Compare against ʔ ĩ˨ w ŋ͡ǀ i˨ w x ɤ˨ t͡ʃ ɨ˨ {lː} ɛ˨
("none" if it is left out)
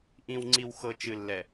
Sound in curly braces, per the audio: lː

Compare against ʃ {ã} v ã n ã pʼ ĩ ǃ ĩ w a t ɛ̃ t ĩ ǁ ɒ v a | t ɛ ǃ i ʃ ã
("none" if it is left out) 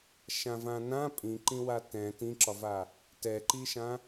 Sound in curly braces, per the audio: ã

